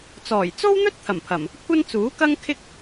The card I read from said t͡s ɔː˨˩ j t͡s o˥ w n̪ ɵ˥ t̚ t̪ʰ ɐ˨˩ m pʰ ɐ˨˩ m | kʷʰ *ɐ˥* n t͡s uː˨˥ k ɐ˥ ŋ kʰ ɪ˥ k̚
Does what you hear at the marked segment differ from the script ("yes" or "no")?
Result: no